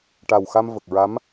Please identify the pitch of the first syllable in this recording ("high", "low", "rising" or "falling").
low